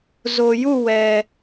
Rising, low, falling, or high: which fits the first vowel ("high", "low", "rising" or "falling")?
low